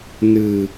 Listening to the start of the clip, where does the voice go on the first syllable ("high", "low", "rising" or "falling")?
low